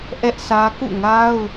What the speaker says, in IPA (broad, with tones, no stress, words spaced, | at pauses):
ʔɛ˦ʔsä˦ kṵ˦˨ŋa˦ʊ̯